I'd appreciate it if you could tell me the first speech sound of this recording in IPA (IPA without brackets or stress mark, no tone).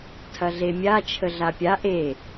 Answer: tʰ